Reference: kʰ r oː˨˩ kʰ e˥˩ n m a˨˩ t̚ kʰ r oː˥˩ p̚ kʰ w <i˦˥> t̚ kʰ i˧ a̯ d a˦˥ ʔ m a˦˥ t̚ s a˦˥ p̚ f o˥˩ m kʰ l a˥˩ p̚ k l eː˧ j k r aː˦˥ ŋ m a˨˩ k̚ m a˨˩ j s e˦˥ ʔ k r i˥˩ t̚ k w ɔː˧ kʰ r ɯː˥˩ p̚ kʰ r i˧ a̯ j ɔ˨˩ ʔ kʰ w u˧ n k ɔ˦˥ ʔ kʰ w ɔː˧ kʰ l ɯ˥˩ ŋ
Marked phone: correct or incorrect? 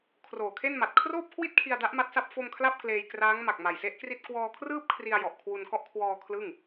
incorrect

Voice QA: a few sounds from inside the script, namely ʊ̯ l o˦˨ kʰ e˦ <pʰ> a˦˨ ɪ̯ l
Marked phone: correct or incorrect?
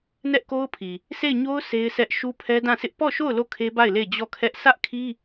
incorrect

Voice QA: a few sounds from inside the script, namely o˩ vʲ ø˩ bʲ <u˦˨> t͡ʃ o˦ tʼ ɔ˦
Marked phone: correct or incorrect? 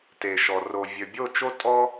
incorrect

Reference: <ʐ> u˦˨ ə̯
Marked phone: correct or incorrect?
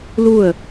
incorrect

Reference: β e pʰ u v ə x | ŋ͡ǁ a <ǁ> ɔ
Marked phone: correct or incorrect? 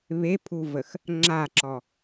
correct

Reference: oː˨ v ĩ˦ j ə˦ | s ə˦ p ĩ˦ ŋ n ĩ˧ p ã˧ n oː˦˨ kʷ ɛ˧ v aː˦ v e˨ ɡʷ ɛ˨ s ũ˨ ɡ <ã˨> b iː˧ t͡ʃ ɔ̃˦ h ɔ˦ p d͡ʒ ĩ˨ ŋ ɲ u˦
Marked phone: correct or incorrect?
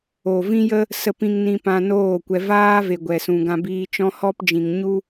incorrect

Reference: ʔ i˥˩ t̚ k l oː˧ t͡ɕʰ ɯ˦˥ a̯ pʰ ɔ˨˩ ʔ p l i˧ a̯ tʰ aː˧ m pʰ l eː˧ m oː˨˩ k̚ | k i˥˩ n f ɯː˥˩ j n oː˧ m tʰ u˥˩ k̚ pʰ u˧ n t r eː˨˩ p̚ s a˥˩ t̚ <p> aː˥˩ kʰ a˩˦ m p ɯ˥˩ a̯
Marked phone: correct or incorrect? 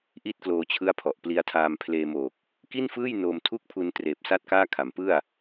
incorrect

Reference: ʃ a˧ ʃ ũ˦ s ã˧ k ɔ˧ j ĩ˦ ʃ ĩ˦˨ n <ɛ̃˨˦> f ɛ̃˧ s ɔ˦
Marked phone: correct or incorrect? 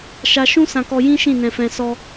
incorrect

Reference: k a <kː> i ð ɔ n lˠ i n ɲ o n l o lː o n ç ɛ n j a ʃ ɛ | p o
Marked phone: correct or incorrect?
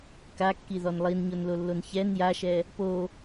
correct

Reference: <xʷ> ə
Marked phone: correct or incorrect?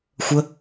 correct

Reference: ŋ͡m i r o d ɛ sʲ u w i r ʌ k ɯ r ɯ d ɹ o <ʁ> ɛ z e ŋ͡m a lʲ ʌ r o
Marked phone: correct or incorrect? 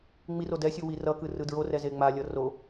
incorrect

